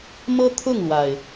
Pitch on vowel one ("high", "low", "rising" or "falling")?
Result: high